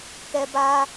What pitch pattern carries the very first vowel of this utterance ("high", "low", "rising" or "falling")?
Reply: high